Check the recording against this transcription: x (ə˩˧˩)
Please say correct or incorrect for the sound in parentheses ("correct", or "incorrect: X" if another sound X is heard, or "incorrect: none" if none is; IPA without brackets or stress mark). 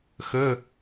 correct